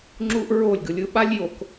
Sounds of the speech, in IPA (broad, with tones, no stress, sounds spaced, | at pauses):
ŋ͡ǁ u˦ ʔ ɹ o˦˨ lʲ ɡ ɯ˨ lʲ ɯ˦ ɓ a˦ lʲ j o˨ k